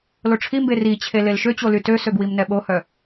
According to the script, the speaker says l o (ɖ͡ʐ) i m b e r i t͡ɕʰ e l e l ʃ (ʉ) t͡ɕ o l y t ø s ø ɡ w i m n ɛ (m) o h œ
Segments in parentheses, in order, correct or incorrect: incorrect: ʈ͡ʂʰ, incorrect: ø, incorrect: ɓ

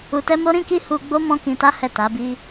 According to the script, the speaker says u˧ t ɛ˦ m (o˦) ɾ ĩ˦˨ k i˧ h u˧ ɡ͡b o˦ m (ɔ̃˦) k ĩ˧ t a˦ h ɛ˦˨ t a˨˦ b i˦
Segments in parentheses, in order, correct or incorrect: correct, correct

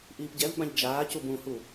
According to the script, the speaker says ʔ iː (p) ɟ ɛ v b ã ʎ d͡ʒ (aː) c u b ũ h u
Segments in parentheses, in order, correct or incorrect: correct, correct

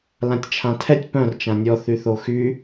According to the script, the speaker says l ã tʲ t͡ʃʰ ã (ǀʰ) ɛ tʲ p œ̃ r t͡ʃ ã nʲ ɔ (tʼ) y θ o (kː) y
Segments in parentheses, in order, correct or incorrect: incorrect: tʰ, incorrect: θ, incorrect: x

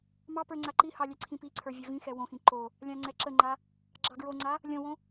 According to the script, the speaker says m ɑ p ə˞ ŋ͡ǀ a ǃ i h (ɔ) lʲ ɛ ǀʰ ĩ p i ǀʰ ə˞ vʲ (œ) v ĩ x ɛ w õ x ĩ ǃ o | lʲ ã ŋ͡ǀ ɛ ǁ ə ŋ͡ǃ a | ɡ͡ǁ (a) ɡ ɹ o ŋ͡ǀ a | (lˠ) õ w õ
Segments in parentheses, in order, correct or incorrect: incorrect: ɑ, correct, incorrect: ɑ, incorrect: lʲ

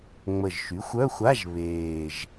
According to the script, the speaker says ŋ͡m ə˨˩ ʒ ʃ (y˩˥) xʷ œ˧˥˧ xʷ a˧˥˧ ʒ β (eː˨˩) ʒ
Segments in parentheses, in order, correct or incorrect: correct, correct

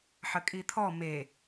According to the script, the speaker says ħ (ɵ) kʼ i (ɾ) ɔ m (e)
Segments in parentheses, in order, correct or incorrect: incorrect: ə, incorrect: t̪ʰ, correct

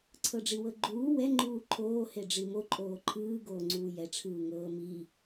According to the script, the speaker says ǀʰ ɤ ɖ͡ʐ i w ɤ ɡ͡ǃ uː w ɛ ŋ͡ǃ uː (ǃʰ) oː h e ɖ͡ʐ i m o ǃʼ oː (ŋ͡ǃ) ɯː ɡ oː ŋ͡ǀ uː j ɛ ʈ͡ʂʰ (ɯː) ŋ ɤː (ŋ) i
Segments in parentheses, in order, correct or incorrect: correct, incorrect: ǃʰ, correct, incorrect: m

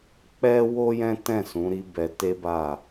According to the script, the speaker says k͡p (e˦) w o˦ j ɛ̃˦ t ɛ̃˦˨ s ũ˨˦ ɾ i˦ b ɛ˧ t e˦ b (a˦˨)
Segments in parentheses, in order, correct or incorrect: incorrect: ɛ˦, correct

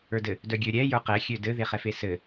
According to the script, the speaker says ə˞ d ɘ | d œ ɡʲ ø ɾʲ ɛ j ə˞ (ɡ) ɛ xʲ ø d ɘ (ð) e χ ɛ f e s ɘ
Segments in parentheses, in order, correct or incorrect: incorrect: q, correct

